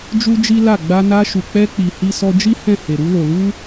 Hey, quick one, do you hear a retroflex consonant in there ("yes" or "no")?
no